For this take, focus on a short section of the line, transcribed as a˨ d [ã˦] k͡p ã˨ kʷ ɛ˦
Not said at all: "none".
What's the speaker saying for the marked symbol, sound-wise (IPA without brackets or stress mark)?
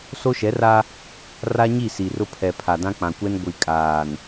ã˦